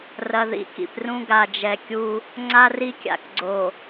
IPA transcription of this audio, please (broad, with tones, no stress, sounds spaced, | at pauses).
r ɐ˨ ð ḭ˦ k ḭ˨ p r ũ˦ ɡ a˨ d͡ʒ ɛ˨ kʲ u˦ | ŋ͡ǀ a˦ r i˦ kʲ a̰˨ k ɡ͡ǀ o˨